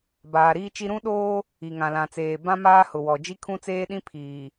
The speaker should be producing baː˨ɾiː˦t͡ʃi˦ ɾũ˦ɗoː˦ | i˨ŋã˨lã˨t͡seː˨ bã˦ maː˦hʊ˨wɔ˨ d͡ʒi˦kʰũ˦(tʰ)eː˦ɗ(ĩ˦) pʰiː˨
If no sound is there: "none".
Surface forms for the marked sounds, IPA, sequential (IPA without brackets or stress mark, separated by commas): t͡s, ĩ˦